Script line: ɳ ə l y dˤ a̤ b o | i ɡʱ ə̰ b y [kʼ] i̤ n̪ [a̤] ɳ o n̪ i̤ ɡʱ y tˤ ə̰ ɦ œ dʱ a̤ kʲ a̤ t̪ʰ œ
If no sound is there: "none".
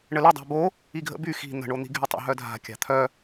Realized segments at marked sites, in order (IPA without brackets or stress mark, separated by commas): x, ə̤